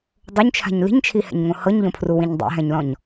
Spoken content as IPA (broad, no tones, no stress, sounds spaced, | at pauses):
dˤ o ɲ t͡ʃʰ a̤ ɲ l i̤ ɲ t͡ʃʰ i h ɛ̰ ɲ ŋ õ h ɤ ɲ ʎ õ pʰ r u w ĩ ɲ dˤ ɛ̰ ɦ ɛ̃ ɲ l ɔ̃ ɲ